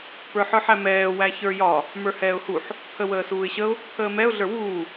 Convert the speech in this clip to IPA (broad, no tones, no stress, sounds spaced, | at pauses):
p ə˞ ħ ə˞ ħ æ m ɛː w æ ç ə˞ j ɒ | m ə˞ h ɛː ʊ̯ h u ħ | pʰ ə w əː s uː ɪ̯ ɕ ə ʊ̯ | pʰ əː m ɛ ʊ̯ ɮ ə˞ w uː